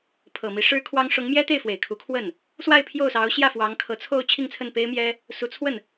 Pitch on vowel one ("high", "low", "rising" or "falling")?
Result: low